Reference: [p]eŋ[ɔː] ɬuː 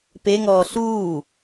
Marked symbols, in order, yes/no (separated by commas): yes, yes